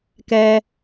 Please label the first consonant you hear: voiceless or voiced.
voiceless